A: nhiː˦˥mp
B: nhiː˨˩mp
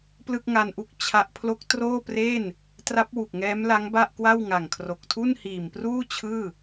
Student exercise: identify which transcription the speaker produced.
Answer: B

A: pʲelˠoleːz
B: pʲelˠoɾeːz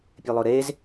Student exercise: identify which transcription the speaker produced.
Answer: B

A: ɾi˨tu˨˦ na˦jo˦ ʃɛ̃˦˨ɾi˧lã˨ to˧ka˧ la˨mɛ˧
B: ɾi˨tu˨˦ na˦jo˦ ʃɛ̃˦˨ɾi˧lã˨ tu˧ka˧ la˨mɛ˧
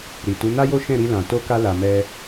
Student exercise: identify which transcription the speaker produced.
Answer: A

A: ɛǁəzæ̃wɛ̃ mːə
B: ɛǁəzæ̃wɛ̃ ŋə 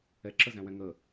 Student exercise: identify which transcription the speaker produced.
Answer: B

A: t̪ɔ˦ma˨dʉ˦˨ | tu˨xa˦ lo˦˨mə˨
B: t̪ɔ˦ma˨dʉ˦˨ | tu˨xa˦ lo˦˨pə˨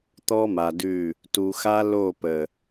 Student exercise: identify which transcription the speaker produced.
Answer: B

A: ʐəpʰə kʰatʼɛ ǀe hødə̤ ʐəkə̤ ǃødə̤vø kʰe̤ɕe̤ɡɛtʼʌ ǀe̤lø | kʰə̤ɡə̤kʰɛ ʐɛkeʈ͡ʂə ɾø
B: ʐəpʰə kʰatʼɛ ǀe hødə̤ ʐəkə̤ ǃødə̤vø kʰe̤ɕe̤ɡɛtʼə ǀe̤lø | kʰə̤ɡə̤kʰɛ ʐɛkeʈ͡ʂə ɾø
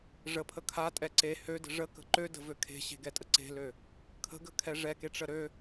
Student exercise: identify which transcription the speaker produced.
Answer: B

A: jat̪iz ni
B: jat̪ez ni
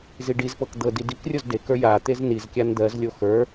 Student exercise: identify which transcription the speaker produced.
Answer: B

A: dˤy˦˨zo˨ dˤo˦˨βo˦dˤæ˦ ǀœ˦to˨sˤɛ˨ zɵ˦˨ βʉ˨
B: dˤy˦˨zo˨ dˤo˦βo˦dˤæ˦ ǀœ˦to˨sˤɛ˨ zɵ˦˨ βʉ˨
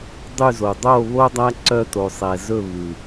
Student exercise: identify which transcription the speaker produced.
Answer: A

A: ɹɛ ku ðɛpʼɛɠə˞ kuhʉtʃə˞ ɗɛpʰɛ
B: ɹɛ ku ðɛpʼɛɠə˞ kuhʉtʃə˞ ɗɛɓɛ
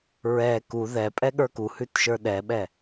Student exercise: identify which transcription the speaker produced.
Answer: B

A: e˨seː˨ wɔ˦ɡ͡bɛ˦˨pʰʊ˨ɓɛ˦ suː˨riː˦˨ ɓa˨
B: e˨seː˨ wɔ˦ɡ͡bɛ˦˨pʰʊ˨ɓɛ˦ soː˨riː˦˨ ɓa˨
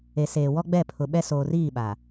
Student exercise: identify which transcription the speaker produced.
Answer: B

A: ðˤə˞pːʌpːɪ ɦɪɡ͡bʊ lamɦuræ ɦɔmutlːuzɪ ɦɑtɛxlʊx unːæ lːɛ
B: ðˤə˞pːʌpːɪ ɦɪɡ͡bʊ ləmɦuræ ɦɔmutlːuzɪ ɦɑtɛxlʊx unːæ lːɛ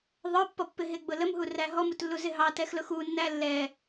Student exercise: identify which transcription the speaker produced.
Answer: B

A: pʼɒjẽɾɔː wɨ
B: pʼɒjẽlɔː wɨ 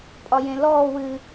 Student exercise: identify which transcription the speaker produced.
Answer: B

